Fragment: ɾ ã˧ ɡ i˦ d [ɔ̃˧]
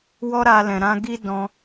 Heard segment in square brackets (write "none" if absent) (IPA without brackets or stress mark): ɔ̃˧